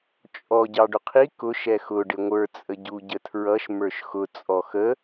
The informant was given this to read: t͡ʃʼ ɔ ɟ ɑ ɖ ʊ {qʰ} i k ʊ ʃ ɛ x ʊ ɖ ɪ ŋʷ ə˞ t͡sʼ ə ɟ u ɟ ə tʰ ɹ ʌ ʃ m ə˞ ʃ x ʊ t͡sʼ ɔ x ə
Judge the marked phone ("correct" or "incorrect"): correct